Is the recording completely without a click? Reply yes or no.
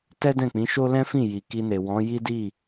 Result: yes